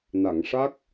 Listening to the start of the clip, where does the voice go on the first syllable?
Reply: low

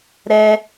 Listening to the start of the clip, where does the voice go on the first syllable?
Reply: high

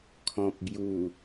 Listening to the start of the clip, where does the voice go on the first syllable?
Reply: low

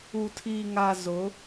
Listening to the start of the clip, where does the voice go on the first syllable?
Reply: low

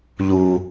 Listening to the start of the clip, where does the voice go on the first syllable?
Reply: low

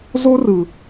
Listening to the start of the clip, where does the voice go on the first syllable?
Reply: high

